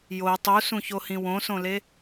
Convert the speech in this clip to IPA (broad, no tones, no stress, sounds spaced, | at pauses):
j o tˤ u s ũ ç o h ĩ w õ s õ l e